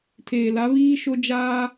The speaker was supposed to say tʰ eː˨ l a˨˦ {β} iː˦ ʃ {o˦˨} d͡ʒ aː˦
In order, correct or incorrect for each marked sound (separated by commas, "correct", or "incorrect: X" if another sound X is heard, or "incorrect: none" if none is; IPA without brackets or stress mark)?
correct, incorrect: o˦